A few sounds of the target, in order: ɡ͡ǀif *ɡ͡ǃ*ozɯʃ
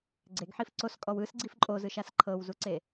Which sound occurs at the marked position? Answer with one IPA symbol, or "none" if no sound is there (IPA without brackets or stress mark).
ǃʼ